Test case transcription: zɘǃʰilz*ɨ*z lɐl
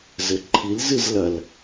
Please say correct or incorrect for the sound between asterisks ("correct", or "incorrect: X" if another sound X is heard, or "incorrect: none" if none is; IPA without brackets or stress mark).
correct